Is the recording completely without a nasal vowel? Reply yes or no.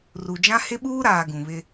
no